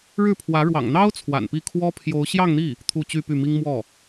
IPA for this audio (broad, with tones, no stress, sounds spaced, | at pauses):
ɻ ɻ̩˥˩ pʰ w ä˧˥ ɻ w ɑ̰˨˩ ŋ n̪ ɑ˥ ʊ̯ t͡sʰ w a̰˨˩ n p i˥˩ kʰ w ɔ˥ pʰ j o˧˥ ʊ̯ ɕ j ɑ˥˧ ŋ n̪ i˥˩ | t̪ʰ u˥˧ t͡ɕ y˥˧ p y˥˩ m i˥ ŋ m w ɔ˥˩